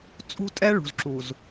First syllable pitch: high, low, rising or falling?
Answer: high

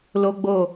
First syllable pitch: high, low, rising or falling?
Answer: high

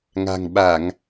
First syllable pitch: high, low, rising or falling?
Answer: low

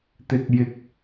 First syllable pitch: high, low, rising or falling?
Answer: low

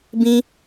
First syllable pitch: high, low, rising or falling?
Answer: high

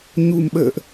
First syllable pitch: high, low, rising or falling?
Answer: low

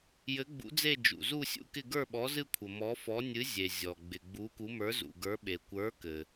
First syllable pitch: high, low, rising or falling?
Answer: rising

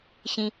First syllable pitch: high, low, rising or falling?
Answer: low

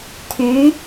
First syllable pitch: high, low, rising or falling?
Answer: rising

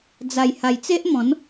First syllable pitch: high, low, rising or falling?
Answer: low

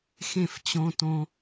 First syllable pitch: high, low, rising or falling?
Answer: falling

